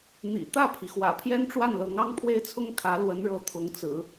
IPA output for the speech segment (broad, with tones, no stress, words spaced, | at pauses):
n̪ḭ˨˩ t̪ä˥˩pʰi˩ xwä̰˨˩pʰjɛ˥nʈ͡ʂwa˥˩nlɤ˧˥ŋ ɑ˥ŋpʰwe˥ɪ̯t͡sʰʊ˥ŋkʰä˧˥ lwə˧˥nɻɤ˧˥ t̪ʰʊ˧˥ŋt͡sɹ̩˨˩˦